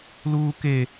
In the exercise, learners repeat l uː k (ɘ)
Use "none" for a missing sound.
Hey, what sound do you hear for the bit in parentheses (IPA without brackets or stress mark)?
e